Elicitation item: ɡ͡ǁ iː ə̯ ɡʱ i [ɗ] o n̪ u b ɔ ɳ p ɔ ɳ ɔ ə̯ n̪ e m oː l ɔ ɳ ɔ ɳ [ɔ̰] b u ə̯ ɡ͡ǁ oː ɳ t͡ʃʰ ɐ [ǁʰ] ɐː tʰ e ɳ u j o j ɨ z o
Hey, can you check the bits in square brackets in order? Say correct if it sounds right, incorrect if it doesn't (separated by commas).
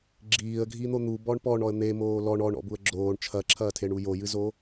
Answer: incorrect, correct, correct